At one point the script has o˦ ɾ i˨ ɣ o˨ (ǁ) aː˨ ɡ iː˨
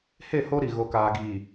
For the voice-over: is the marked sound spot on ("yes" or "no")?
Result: no